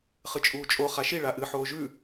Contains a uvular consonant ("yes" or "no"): yes